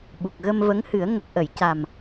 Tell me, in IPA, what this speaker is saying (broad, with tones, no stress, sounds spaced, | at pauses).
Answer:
ɓ u˨˩ k̚ ɣ ə˧ m v ə˧˥ ŋ h ɨ˨˩˦ ə̯ ŋ ə˨˩ k̚ ʔ ə˨˩˨ j c a˨˩ m